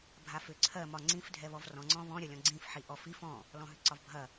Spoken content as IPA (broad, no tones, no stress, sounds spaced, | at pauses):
bʱ a f ʏ ǀʰ ɜ m ɒ ŋ͡ǀ ĩ f dʱ ɛ β ɔ v r ɔ̃ ŋ͡ǀ ɔ̃ β ɔ̃ ɾʲ ɐ lʲ ɔ̃ ɡ͡ǀ ĩ f ħ i ʔ ɔ f i f ɔ̃ | l ɔ̃ ɦ ʏ ǀ ɒ v bʱ ɐ